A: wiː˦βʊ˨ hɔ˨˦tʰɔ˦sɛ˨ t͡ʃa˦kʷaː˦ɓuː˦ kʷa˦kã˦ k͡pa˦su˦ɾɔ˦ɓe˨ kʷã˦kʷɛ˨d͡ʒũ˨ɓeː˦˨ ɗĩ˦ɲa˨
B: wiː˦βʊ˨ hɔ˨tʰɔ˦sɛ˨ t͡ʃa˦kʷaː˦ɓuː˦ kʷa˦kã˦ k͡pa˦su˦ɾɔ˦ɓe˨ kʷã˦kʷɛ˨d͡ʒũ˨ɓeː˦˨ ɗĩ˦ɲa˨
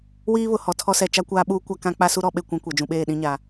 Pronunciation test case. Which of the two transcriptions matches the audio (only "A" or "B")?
B